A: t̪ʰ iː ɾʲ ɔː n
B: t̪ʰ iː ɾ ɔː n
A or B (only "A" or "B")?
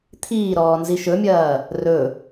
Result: B